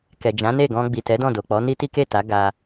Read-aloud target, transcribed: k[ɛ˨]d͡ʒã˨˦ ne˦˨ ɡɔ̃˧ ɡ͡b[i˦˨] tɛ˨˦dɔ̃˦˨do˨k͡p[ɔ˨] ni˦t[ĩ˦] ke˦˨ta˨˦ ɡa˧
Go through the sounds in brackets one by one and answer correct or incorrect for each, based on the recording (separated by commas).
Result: correct, incorrect, incorrect, incorrect